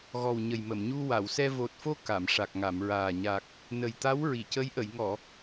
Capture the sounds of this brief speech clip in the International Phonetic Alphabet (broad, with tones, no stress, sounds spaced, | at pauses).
ɣ ɔ˨˩ w ɲ ə˨˩ j m ə˨˩˨ m ɲ u˧ w a˨˩˨ w s ɛ˧ v o˨˩ t̚ f o˧ k a˨˩˨ m ʂ a˨˩ k̚ ŋ a˨˩˨ m ɹ aː˨˩ ɲ a˨˩ k̚ | n ə˨˩ j t̪ a˧˥ w ɹ i˨˩˨ c ə˧˥ j ʔ ə˨˩˨ j ŋ ɔ˨˩˨